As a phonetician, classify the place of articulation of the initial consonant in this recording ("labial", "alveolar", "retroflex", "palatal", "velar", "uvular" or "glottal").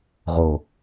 uvular